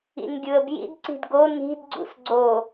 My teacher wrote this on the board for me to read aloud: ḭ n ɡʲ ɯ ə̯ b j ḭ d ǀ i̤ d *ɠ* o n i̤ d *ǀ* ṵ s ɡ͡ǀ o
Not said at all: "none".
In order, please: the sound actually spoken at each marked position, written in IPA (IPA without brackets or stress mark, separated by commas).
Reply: ɡ, ɡ͡ǀ